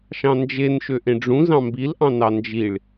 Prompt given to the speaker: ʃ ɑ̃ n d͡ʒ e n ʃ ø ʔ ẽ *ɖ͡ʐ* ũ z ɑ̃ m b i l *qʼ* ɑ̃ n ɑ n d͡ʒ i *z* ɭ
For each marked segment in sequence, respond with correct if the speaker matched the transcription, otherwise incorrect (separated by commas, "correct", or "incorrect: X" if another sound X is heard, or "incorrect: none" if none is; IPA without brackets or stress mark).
correct, incorrect: ʔ, incorrect: none